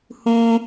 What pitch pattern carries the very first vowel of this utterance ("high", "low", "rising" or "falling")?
high